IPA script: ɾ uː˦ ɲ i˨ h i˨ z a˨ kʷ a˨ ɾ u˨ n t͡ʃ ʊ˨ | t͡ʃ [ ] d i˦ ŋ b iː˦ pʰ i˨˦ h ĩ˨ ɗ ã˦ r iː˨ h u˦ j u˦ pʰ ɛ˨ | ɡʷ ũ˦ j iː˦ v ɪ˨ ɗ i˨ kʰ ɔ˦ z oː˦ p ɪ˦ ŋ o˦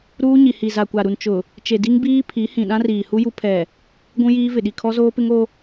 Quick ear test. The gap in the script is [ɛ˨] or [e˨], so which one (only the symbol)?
e˨